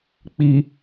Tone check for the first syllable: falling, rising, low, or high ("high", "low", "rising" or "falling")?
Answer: low